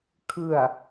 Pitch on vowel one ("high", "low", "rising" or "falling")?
low